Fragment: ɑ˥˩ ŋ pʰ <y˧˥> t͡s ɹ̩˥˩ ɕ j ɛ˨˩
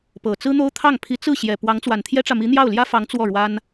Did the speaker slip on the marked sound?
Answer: yes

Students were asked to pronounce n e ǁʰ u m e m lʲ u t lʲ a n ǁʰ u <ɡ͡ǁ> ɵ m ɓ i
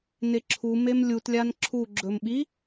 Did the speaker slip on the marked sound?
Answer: no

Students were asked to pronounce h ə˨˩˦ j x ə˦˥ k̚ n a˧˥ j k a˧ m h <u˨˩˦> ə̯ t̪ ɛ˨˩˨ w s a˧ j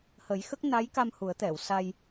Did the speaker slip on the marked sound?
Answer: no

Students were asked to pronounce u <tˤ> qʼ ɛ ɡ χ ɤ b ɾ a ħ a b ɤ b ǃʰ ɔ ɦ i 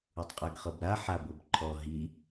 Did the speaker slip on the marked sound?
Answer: no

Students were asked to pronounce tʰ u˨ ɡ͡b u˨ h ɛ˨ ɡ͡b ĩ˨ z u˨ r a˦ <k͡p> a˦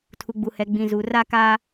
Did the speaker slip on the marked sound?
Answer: yes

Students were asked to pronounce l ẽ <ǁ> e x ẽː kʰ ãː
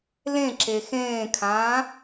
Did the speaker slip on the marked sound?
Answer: no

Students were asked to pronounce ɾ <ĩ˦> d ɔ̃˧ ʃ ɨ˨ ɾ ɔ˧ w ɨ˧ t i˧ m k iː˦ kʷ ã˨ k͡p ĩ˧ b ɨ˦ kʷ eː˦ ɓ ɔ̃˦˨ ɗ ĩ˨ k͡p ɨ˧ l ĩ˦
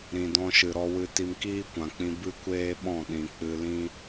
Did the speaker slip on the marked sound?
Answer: yes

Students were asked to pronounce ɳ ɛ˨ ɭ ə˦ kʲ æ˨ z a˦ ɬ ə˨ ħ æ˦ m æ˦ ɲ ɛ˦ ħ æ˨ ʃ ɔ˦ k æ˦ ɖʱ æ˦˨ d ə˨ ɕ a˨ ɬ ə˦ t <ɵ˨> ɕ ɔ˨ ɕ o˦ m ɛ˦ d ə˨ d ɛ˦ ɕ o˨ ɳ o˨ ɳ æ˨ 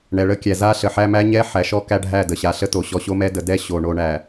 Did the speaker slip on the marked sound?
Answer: yes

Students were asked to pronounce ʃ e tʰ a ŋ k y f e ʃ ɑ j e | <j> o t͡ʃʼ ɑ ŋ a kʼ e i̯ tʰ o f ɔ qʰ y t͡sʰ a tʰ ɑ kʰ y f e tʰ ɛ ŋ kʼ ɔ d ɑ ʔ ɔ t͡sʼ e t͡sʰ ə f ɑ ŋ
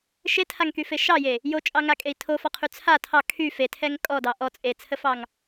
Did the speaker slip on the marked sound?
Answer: no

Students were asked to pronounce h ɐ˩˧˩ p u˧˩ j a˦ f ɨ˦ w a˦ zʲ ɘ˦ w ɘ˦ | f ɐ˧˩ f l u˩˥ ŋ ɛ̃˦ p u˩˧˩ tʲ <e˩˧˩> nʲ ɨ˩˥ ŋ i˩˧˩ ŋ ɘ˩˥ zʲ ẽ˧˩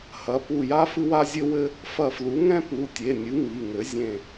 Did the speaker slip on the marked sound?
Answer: no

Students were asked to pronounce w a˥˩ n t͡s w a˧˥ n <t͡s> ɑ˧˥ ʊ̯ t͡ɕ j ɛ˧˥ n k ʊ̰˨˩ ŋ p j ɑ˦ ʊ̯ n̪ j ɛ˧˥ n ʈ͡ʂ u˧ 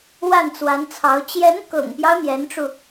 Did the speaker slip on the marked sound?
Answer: yes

